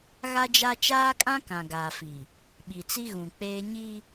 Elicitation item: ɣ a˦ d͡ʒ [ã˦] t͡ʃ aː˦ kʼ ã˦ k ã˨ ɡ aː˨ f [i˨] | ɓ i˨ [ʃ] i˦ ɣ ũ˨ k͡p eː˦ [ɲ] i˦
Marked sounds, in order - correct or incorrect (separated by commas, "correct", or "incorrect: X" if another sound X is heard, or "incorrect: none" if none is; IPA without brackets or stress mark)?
incorrect: a˦, correct, incorrect: t͡s, correct